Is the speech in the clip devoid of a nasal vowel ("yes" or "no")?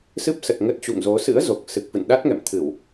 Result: yes